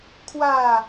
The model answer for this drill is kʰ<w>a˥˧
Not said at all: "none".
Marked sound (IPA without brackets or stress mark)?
w